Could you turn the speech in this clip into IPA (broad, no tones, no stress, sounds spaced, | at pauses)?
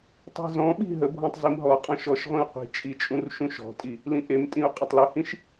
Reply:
tˤ i̤ z ɔ̃ ɓ i̤ ɦ ə bʱ ɔ̃ tˤ z i m ɦ ɔ qʼ ɔ̃ ʃ ɔ ʃ ʁʷ ĩ u̯ qʷ i̤ t͡ʃʼ i t͡ʃʼ ũ r ʃ ũ ʃ ɔ̤ tʼ i | l ĩ ʔ e m tʼ ĩ u̯ qʼ ʌ tˤ l u h ĩ ʃ